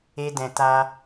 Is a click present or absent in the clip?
absent